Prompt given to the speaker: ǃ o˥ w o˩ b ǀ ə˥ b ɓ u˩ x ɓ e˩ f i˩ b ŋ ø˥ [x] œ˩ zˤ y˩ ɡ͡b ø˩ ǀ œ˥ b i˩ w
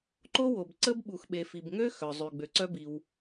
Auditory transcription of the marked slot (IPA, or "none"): x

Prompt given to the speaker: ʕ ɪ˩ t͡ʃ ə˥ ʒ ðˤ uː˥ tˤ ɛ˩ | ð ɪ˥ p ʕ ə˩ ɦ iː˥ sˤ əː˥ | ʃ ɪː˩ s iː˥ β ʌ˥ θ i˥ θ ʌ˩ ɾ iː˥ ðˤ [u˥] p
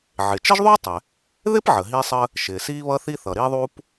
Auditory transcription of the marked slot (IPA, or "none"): uː˥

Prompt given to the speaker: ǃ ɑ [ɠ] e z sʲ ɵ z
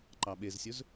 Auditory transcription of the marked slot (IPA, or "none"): ɓ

